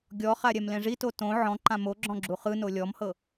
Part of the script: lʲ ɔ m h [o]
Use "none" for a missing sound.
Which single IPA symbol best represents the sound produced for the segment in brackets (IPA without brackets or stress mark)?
ɤ